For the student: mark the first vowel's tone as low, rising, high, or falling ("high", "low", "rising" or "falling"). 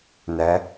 rising